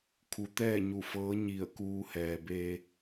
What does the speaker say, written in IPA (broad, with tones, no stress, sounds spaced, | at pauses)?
kʰ u˩˧ t̪ ɛː˥˨ ɲ u˧˩ f ɤː˧˥ ɲ i˧˩ ə̯ k uː˧ h ɛː˩ b e˧